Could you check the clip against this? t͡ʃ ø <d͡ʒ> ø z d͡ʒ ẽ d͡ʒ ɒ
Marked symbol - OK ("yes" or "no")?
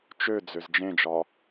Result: no